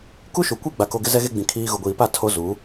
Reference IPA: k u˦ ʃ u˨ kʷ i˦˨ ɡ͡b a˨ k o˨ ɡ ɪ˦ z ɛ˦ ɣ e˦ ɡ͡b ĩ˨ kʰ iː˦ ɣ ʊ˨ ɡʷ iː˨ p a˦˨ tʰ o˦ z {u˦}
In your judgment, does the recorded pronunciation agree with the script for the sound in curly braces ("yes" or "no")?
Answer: no